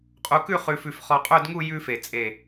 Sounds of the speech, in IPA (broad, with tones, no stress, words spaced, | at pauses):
qʼu˧kʉ˥˧ χʉ˧fʉ˧f χɔ˧qʼɵ˥˧dŋu˥˧ jʉ˥fe˧˩t͡sʼe˧˩